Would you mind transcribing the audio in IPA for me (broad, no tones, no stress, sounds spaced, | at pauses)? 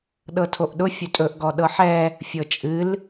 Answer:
ɗ ɤ tʰ o ʔ ɗ ʊ fʲ ɵ tʼ ɵ ʔ ɡ ɔ ɗ ɤ ħ ɛ | fʲ ɤ t͡ʃʼ ɨ l